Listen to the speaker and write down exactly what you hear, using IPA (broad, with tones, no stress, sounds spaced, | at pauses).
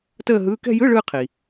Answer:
t əː˥˧ ɦ ɯː˧˥˧ k ɛ̤˥˧ j ɯ˧˥˧ ɭ ɯː˧ qʰ i˩